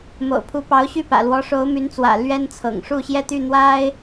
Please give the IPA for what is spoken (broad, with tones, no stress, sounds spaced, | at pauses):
m o̰˨˩ ʊ̯ pʰ u˧˥ p ɑ˧˥ ʊ̯ ɕ y˥˩ p ä̰˨˩ l w ɔ˧˥ ʂ o˧˥ ʊ̯ m y˧˥ n t͡s w ä̰˨˩ l ɥ ɛ˥ n t͡sʰ ɤ̰˨˩ ŋ ʂ u˥˩ ɕ j ɛ˥ t̪ y˥˩ n̪ w a˥ ɪ̯